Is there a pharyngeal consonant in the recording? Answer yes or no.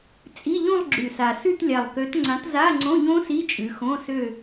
no